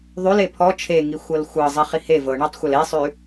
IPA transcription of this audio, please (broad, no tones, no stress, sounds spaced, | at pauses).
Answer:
ðˤ ʉ l e pʰ ɔ t͡ʃʰ e ŋ i xʷ ɤ l xʷ ɤ zˤ i χ i h e v ɤ ɳ ɔ tˤ xʷ ɤ l e sˤ ʉ